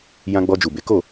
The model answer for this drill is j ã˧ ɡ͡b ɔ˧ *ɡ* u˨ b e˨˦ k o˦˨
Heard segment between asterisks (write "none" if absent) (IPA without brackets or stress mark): d͡ʒ